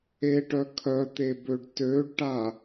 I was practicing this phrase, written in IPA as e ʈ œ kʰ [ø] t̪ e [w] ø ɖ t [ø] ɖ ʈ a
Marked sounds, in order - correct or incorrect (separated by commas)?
incorrect, incorrect, correct